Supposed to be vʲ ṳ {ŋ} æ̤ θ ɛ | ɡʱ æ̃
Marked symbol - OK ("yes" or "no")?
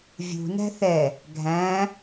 no